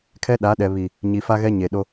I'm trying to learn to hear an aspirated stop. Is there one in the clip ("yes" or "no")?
yes